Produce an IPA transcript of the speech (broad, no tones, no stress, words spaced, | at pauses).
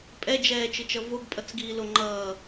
pʼɛd͡ʒɛːt͡ʃɯt͡ʃʌ voɡpʼʌt͡sɡiːlo ŋ͡ǃʌː